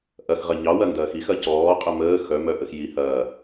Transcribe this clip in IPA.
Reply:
ʔ ɐ x ʁ ɐ ɲ ɑ w ɐ n d ɐː x i x ɐ c ɔː qʼ ə m əː x œ m œ ʔ ə x j i h ɐː

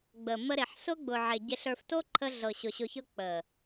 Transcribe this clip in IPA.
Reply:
ɡ͡b ə˨ mː ə˧ ɾ e˨ ħ s ʊ˦ ɡ͡b ʊ˨ ʕ e˨ ɟ e˧ ɬ ə˞˧ f t o˦ ǃʰ ə˧ ɮ ɤ˨ ɕ ʊ˨ ɕ ʊ˧ ç ɤ˦ k͡p ə˨

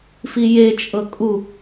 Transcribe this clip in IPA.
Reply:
f i j e t͡ʃʼ ɤ kʼ u

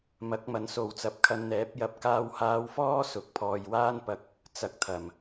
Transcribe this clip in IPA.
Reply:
m ɐ˨˥ k̚ m ɐ˨ n s o˨ w t͡s ɐ˨˥ p̚ kʰ ɐ˧ n n̪ ɛː˨˥ p̚ j ɐ˧ p̚ k aː˧ w h aː˧ w f ɔː˥ s ʊ˨ k̚ pʰ ɔː˨ j w aː˥ n p ɐ˧ k̚ | t͡s ɐ˨ k̚ t̪ʰ ɐ˨˩ m

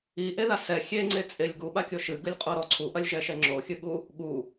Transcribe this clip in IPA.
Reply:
i ʔ e ð a s ɛ xʲ e ŋ͡ǀ e t͡sʼ e lʲ ɡ u ɓ a kʲ o ʃ ɨ ɡ ɨ lʲ qʼ o ɾ ɔ ǀʰ u ʔ ɐ lʲ ʒ ɛ ʃ ɛ ŋ͡ǁ o xʲ ɨ ɠ u | ɠ u

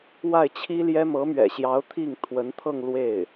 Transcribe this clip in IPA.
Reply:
w a˥˩ ɪ̯ t͡ɕʰ i˥ l j ɛ˥ m ɤ˧˥ m ɥ ɛ̰˨˩ ɕ j ɑ˧˥ ʊ̯ t̪ʰ i˥˩ ŋ t̪ʰ w ə˧˥ n t̪ʰ ɤ˥˧ ŋ l w e˥˩ ɪ̯

